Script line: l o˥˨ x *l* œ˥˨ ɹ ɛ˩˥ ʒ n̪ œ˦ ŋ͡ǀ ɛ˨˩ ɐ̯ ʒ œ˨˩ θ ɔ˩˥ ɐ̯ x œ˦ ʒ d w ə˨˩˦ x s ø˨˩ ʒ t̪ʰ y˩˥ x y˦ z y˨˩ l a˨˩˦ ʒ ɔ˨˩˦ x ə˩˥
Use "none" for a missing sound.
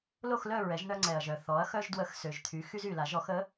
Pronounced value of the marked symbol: l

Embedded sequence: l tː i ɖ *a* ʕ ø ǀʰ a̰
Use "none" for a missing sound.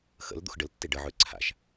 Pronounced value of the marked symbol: ə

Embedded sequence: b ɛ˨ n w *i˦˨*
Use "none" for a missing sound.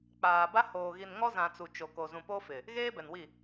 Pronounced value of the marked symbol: i˦˨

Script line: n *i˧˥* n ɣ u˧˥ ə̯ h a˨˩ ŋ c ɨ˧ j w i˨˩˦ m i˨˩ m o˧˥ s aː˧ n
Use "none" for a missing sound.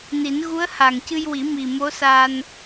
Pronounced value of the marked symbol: i˨˩˦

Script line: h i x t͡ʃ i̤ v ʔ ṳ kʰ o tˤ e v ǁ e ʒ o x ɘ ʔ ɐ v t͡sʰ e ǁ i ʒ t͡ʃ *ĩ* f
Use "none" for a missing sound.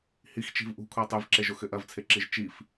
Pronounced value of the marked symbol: i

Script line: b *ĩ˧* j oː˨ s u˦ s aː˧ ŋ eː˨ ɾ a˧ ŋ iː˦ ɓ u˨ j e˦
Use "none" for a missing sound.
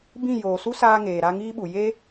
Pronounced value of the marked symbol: ĩ˦˨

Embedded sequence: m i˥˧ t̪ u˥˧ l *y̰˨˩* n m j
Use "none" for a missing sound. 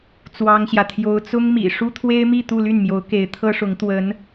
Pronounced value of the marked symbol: y˥˩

